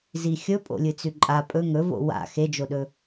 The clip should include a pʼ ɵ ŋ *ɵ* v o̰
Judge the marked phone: correct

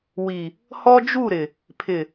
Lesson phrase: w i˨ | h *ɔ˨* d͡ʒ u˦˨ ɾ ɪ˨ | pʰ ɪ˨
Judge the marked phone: incorrect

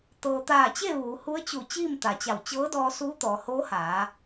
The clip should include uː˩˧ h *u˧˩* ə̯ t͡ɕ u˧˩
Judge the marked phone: incorrect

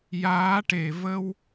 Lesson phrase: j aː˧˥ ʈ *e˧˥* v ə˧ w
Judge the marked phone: incorrect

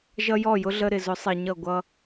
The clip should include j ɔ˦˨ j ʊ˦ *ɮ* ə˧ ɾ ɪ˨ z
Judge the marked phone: correct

